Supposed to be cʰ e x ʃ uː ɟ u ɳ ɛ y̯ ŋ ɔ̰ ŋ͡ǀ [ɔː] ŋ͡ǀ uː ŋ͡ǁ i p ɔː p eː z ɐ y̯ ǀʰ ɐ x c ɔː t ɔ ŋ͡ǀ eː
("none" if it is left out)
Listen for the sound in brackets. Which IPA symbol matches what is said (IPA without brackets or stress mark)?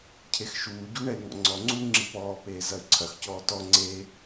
ɔ